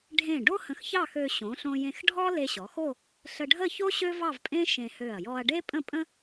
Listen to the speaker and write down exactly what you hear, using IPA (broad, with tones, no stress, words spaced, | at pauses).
ɖʱẽ˧˩ ɖo˥hə̃˧˩xçɑ˥˧xø˧ ɕõ˩˧ɬõ˧jẽ˧xɖʱɔ˥ le˧ɕɔ˩˧xo˥˧ | ɬə˧ɖʱə˥˧ço˥ ɕø˥vɑ˥˧vpʼẽ˥ ʃẽ˧hø˧˩ɐ̯ jɔ˧ɐ̯ɖe˥ pʼə̃˥˧pʼə̃˥